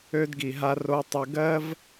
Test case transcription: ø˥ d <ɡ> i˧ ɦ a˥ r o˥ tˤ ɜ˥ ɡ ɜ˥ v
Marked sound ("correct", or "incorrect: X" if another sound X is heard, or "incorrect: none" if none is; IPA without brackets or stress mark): correct